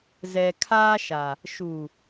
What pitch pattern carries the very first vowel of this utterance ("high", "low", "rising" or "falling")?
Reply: low